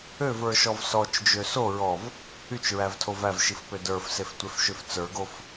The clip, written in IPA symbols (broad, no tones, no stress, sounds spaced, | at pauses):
ø v ə˞ ʃ ɔ v s ɔ t͡ʃ d͡ʒ ø s o ɹ ɔ v | y t͡ʃ ɹ æ v tʰ o v æ v ʃ i f p ø d ə˞ f s e f tʷ e f ʃ ø f t͡s ə˞ ɡ o f